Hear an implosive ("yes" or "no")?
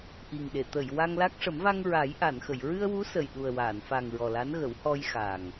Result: yes